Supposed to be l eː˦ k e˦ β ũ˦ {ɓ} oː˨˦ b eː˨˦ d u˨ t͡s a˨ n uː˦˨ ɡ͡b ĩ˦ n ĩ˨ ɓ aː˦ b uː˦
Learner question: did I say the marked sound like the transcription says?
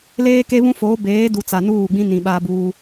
no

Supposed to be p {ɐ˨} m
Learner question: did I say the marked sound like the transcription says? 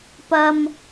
yes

